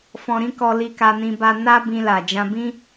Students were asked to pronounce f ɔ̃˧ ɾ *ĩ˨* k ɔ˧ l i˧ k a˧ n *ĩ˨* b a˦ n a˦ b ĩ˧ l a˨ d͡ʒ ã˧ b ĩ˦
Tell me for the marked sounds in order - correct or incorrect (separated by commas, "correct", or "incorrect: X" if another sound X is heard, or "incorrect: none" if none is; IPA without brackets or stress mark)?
incorrect: ĩ˦, incorrect: ĩ˧